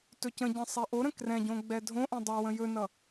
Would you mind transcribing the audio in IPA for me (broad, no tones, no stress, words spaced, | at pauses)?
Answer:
tɵcə̃ɟɛ̃ sˤɛʔoɾə̃ krɛ̃ɟõ ɡ͡bɛdʱõʔɛ̃ dˤʌ wə̃jɵnʌ